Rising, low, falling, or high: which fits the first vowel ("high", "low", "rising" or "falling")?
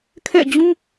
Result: falling